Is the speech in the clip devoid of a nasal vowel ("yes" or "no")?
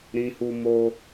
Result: no